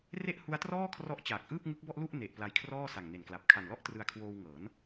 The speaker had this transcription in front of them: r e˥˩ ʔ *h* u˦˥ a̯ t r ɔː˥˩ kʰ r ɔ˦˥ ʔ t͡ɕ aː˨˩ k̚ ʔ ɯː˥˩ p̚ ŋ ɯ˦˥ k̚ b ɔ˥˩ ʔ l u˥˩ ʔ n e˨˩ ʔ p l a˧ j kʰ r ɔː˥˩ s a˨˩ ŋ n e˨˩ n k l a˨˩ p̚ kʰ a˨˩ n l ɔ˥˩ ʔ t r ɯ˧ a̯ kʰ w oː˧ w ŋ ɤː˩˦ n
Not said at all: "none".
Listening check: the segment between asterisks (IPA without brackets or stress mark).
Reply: h